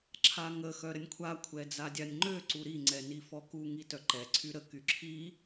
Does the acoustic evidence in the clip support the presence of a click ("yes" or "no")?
yes